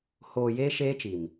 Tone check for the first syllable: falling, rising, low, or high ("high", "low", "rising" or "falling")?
low